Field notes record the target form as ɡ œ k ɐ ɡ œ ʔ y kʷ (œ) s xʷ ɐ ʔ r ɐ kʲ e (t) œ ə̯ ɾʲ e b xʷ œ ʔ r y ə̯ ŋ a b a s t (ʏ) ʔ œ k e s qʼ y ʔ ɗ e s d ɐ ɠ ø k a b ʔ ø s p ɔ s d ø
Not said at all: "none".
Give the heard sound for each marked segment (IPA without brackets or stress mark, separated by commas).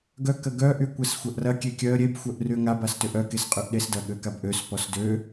ɛ, kʲ, ʏ